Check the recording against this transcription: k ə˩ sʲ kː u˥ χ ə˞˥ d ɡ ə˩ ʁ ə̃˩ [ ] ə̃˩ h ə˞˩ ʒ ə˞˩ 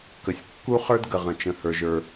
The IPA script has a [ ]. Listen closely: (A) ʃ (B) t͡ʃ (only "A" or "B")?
B